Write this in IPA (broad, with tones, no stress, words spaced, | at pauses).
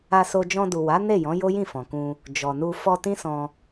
a˧so˧ d͡ʒɔ̃˧du˨wa˨˦ ne˦˨jɔ̃˨˦ jo˦jĩ˦˨fɔ̃˨kũ˧ | d͡ʒɔ˨nu˧ fɔ˧tĩ˦sɔ̃˧